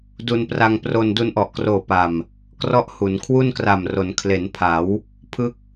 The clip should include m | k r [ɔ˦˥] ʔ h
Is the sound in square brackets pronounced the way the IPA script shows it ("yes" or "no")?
yes